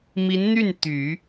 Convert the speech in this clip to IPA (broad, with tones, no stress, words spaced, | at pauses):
mi˧˥nn̪y˥˩n t̪y˨˩˦